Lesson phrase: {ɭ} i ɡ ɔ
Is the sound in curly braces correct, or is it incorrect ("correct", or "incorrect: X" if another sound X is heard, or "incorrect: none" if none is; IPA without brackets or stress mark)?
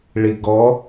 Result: correct